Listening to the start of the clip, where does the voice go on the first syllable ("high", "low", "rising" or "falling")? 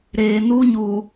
low